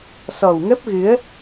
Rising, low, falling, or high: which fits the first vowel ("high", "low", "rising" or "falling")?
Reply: low